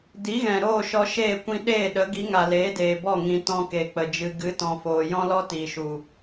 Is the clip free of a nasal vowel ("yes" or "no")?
no